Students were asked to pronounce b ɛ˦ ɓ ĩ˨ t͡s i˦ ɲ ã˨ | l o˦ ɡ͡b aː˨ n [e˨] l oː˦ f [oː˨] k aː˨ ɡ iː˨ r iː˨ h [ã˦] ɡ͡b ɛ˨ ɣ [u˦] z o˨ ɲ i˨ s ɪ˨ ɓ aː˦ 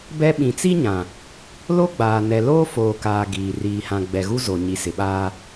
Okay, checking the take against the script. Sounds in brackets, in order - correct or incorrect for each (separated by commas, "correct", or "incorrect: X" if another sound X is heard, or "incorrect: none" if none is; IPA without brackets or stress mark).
incorrect: ɛ˨, correct, incorrect: ã˨, correct